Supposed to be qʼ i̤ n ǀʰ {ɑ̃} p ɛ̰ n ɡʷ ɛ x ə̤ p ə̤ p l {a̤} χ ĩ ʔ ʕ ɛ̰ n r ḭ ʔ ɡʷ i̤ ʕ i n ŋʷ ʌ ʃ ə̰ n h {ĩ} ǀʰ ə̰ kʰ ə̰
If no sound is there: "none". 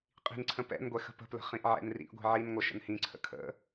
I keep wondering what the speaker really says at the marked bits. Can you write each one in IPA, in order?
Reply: ə̃, ə̤, ĩ

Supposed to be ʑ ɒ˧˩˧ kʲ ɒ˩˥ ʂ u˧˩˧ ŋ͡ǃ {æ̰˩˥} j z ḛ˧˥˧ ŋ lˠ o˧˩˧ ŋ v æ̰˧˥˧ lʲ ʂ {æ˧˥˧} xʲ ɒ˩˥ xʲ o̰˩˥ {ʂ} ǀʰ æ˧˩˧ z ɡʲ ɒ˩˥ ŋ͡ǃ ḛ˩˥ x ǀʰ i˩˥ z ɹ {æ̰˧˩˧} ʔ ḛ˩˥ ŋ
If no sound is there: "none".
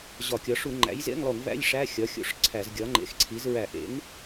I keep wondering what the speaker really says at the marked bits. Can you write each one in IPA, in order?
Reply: æ̰˩˥, æ˧˥˧, ʂ, æ˧˩˧

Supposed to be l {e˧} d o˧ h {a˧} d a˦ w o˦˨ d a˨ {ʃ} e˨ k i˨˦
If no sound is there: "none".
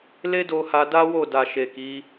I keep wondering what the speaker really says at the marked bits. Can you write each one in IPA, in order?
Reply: e˦, a˧, ʃ

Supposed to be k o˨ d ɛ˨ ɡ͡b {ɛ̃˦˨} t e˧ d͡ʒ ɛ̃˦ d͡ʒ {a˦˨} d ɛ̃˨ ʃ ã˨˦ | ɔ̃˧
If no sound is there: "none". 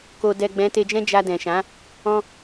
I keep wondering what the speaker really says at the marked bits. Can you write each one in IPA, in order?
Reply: ɛ̃˨˦, a˧

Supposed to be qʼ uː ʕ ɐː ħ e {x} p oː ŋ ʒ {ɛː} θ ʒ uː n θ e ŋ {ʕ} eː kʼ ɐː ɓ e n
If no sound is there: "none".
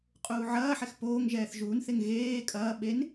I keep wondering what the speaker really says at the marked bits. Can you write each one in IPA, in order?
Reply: x, ɛː, ɣ

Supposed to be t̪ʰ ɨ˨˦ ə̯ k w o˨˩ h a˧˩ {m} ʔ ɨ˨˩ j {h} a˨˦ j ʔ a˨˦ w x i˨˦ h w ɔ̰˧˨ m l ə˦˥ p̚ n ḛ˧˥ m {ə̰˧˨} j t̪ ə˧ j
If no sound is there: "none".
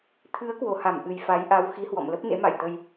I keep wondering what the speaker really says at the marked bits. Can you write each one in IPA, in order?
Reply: m, f, a̰˧˨

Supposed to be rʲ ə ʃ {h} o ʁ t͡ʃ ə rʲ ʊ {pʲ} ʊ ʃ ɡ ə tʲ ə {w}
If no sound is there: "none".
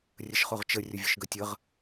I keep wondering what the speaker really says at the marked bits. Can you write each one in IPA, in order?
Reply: χ, vʲ, ʁ

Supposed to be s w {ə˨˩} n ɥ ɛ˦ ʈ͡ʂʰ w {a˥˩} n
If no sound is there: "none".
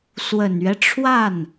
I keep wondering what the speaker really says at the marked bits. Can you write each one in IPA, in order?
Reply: ə˨˩, a˥˩

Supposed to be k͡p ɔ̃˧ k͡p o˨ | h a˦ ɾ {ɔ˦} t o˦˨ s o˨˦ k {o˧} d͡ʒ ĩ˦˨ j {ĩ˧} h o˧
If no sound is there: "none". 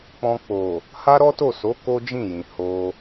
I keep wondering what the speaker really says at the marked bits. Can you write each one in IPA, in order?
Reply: ɔ˦, o˦, ĩ˨

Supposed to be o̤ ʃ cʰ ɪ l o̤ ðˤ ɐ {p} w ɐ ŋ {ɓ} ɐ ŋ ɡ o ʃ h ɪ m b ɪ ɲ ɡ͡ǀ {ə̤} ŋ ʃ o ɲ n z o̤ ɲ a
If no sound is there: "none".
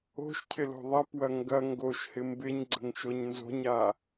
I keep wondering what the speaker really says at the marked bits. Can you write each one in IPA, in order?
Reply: p, ɡ, ə̤

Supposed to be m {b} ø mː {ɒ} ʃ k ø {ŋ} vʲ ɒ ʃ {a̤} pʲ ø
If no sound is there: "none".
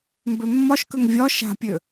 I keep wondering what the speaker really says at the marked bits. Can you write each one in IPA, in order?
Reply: b, ɒ, ŋ, a̤

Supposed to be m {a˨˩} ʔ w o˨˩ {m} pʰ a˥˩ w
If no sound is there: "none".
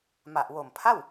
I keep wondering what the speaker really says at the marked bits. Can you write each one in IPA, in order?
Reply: a˨˩, m

